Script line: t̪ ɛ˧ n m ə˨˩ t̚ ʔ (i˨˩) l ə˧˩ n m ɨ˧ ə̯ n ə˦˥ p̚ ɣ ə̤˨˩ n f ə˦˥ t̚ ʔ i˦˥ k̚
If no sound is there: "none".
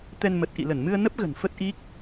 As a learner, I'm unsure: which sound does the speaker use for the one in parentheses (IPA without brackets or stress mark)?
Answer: ḭ˧˨